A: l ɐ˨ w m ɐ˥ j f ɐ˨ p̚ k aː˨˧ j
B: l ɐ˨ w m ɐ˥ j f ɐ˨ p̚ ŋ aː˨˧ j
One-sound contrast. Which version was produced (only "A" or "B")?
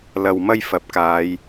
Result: A